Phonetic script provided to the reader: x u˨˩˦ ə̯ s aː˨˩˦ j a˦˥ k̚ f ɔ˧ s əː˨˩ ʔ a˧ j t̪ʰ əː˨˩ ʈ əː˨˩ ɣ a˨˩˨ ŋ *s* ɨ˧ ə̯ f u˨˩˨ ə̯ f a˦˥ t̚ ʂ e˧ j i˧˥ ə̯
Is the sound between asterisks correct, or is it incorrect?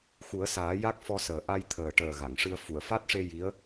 incorrect